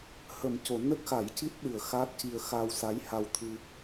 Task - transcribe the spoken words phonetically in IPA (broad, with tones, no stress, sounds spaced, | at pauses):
h ə˨˩˦ m c o˨˩˨ n ə˦˥ k̚ x a˨˩˦ j c i˦˥ t̚ ɗ ɨ˨˩ ə̯ x aː˦˥ t̚ c i˧ ə̯ x aː˧ w s a˧˥ j h a˧ w t̪ʰ ɨ˧